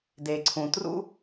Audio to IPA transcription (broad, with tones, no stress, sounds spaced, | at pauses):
d e˩ ǀʰ ũ˩ t r ṵ˥